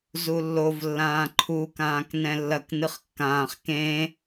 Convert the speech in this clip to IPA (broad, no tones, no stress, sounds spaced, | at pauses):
z u lː o v lː ãː ǃʰ u k ãː k n ɛ̃ lː ɐ k n ɨ χ kː ãː χ k ẽ